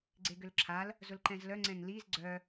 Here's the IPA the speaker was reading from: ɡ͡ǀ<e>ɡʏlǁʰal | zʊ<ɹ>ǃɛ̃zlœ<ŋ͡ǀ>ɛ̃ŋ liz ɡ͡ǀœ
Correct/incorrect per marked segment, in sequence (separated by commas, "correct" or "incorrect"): correct, incorrect, correct